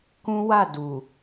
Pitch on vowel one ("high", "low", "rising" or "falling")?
high